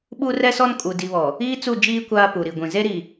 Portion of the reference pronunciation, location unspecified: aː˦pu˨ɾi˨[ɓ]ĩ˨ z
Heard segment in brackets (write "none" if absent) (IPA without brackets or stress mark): ɡʷ